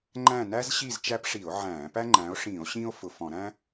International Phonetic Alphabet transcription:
ŋ͡ǃ æ̃˦˨ n æ˥ z ɕ i˦˨ z t͡ʃ æ˥ p ʂ i˧˩˧ o̯ ʕ æ̃ː˧˩˧ p æ˥ ŋ͡ǃ æ̃˨˦ o̯ ʂ ĩː˧˩˧ o̯ ɕ ĩː˥ o̯ f ʊ˨˩ f ɔ̃˧˩˧ ɾ æ̃˥

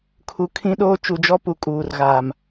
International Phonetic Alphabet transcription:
kʰ u˨ kʰ ĩ˦ ɗ oː˦ t͡ʃ u˨ d͡ʒ ɔ˦ p u˨ kʼ uː˨ r ɣ aː˨ m

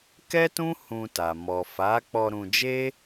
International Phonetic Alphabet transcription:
k ɛ˦ t ũ˦ h ũ˧ t a˨ m ɔ˨ f a˨˦ k͡p ɔ˧ ɾ ũ˧ d͡ʒ e˦

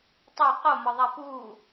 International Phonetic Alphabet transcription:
tˤ o q o m ɒ ðˤ æ p uː

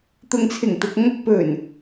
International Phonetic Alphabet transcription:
t̪ ʊ˨ ŋ t͡sʰ ɪ˨˩ ŋ t̪ ʊ˨ k̚ ŋ ɐ˧ k̚ p ɵ˨˩ n

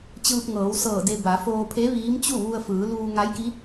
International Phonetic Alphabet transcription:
t͡ɕ ɯː˧ p̚ ŋ ɤː˩˧ w s ɤː˧˩ d e˧ b a˩˧ f oː˧ pʰ e˧˥ ʋ iː˧˥ m t͡ɕ u˥˨ ʋ u˧ ə̯ f ɯː˩˧ l uː˧ ŋ a˧˥ j k i˧˥

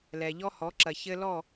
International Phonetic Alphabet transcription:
l ɛ˨ ʎ ɔ˦ h ɔ˨˦ ǁ ɐ˨ ç ɘ˦ l ɔ˦˨

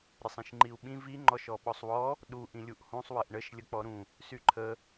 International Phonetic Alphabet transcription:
ɾʲ ə sˤ ĩ ʃ ŋ͡ǃ i u̯ ɓ ĩ v i ŋ͡ǃ ɔ ʃ ɔ ɓ ɔ sˤ w ɔ | ɗ u ʔ ĩ lʲ u ʔ h ũ sˤ w ə ʔ ɳ ə ʃ lʲ ə k͡p ɔ ɾ ũ | s y ǃʰ ə

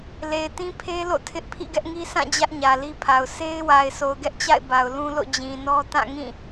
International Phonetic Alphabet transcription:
l e˨ ɪ̯ t ĩ˦ pʰ e˦ l o̰˦˨ tʰ ɪ˦ ʔ pʰ ḭ˦˨ ɡ ɛ˦ ʔ ŋ i˦ s ã˦˨ d͡ʑ ä˦ ʔ ɲ ä˨ l i˦ pʰ a˨ ʊ̯ s e˦ ɪ̯ w a˨ ɪ̯ s o˨ ʊ̯ ɡ ɛ˦ ʔ t͡ɕ a̰˦˨ ɪ̯ b a˨ ʊ̯ l ũ˦ l o̰˦˨ d͡ʑ ĩ˨ n ɔ˦ t ã˦˨ ŋ ĩ˦˨

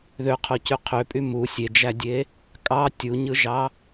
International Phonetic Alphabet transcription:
ð ø qʰ o c y qʰ ø pʼ y m u sʲ e d͡ʒ æ dʲ e | kʼ ɑ tʲ u ɲ ɯ ʒ ɑ

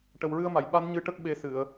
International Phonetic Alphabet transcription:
ʈ ə˨˩ w ɹ ɨ˧ ə̯ m a˨˩˨ j ɓ a˧˥ n ɲ ɨ˧˥ ʈ ə˦˥ k̚ ɓ e˧ s ɨ˨˩˨ ə̯

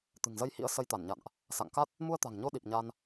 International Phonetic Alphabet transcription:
t̪ ɨ̤˨˩ ŋ z ə˧ j h ḭ˧˥ ə̯ s ə˧ j t̪ a˧˩ n ɲ a̰˧˨ n ʔ | s a̰˧˨ ŋ k a˦˥ t̚ | m u˧ ə̯ t̪ a̤˨˩ ŋ ɲ o˧ ɗ i˨˩ p̚ ɲ a˧ n

